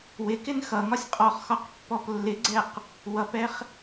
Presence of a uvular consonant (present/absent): present